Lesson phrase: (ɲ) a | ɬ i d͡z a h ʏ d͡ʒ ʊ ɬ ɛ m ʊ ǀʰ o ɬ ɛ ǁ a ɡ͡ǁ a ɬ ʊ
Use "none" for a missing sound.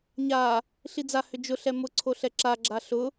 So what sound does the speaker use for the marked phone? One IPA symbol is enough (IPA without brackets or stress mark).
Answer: ɲ